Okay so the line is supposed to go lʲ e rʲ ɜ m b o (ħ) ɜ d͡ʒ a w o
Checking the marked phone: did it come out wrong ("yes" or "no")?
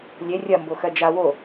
yes